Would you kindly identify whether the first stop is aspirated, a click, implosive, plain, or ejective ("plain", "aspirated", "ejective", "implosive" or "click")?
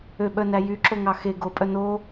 implosive